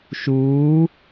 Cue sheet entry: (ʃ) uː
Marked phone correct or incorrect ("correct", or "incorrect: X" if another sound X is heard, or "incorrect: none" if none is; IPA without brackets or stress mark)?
correct